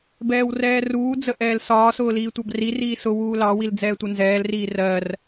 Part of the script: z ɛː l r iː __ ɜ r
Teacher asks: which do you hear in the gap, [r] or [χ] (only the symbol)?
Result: r